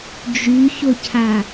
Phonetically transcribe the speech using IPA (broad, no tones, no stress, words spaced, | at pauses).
d͡ʒyçʊcʰa